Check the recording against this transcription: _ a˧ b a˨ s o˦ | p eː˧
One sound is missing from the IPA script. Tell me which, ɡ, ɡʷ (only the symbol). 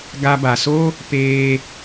ɡ